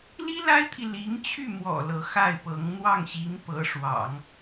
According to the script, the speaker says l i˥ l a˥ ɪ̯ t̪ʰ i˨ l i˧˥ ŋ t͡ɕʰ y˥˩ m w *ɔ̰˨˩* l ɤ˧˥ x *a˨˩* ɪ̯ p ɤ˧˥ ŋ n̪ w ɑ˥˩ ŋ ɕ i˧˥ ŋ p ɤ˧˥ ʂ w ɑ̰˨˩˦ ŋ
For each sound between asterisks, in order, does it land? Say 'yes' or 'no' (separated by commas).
yes, no